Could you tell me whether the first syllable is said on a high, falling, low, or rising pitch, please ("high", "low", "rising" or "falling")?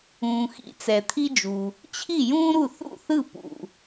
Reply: low